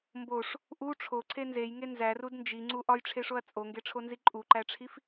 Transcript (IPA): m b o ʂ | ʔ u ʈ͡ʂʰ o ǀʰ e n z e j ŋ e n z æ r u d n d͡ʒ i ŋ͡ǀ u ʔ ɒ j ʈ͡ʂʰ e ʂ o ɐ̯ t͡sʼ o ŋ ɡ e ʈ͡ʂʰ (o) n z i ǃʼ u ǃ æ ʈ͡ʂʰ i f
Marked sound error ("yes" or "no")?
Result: no